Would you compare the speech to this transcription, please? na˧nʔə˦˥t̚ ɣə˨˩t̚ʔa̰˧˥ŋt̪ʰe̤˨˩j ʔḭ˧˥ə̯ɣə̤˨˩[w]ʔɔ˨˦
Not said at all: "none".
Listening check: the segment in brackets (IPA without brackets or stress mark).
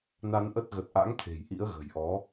j